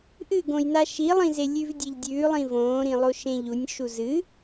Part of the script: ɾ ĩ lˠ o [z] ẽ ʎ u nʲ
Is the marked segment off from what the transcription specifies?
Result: yes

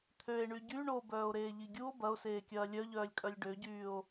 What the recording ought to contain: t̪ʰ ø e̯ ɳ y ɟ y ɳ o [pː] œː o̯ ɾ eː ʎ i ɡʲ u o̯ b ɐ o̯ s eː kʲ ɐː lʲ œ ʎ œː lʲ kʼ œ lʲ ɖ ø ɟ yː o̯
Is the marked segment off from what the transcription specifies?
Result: yes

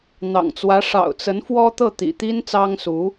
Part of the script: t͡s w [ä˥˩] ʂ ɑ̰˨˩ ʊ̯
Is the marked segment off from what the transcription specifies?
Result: yes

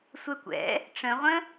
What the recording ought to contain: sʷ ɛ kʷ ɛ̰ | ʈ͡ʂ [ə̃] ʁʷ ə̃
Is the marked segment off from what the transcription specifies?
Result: no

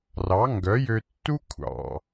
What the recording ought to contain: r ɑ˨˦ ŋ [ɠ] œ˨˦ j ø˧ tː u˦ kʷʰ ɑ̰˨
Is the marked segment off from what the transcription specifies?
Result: yes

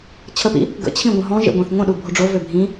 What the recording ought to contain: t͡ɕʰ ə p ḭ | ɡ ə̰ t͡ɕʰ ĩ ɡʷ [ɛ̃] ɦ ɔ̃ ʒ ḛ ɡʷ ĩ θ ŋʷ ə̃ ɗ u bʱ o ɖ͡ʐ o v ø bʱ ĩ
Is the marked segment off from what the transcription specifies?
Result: yes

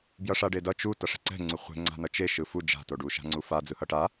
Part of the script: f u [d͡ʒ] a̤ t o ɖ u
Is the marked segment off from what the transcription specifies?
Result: no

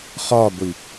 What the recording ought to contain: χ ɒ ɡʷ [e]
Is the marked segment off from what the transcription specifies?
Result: yes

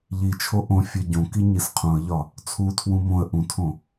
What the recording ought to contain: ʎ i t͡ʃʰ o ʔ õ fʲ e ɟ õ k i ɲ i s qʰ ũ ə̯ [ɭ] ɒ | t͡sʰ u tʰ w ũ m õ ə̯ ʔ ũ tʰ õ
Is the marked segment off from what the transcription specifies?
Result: yes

